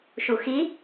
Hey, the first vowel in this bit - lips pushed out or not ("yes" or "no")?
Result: yes